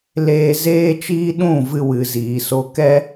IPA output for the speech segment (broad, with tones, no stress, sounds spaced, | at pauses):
l eː˧ z eː˦ t͡ʃ iː˦ ɗ ũ˦˨ v ɨ˧ w ɨ˨ z iː˨ s o˧ k ɛ˦